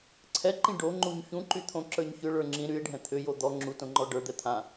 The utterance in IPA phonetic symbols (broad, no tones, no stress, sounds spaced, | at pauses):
ǀʰ ɛ ǃ ĩ ɖ o ŋ͡ǃ u ɲ ç ũ ǃ y t̪ʰ õ ǁ ə˞ ɲ ç ʏ ɭ ə˞ ŋ͡ǁ ĩ ɾ y e̯ ɖʱ ɛ̃ t̪ʰ ʏ j o d̪ ɔ ŋ͡ǁ u t õ ŋ͡ǃ ɔ ɖ ə˞ d̪ ɛ t̪ʰ ã